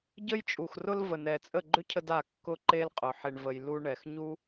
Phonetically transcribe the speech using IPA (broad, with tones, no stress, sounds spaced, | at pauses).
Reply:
ɟ ə˦ j t͡ʃʼ u˨ x r ʊ˦ l v ə˨ n ɛ˨ t͡sʼ ə˦˨ ɡ͡ǃ ʏ˦ cʰ ə˧ d a˦˨ kː ʊ˦ ǃ e˦ l qʼ ʊ˨ ħ e˧ ɳ v ə˧ j l u˧ ɳ ɛ˨ x ɲ u˦